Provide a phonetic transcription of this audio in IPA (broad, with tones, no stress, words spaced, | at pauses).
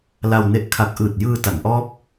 la˧wne˦˥ʔ kʰa˨˩k̚ʔɯː˨˩t̚jɯː˧ ta˩˦nʔɔː˦˥p̚